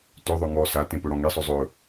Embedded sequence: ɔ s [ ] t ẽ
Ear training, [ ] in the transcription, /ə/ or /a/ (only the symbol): a